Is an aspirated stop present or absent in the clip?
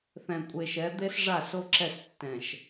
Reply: absent